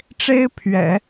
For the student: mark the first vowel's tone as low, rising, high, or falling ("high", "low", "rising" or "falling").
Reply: high